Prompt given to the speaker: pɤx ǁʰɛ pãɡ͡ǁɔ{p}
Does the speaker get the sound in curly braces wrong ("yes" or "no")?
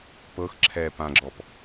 no